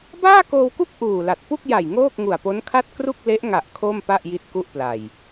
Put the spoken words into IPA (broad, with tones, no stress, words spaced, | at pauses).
baː˥˩koː˧wku˥˩k̚ ʔuː˨˩la˨˩t̚ pu˥˩k̚ja˨˩j ŋoː˥˩k̚ŋu˨˩a̯po˦˥nkʰa˥˩t̚ kru˥˩k̚le˦˥ʔŋa˨˩ʔ kʰo˥˩mpa˥˩ʔ ji˥˩t̚ku˥˩ʔpla˨˩j